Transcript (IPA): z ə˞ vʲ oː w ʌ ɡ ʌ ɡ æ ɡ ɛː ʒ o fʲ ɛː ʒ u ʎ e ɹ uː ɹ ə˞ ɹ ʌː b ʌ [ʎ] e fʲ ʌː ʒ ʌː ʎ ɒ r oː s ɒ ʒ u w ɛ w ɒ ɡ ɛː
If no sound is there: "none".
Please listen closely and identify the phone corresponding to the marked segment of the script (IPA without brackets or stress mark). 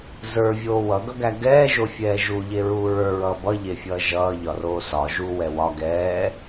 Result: ʎ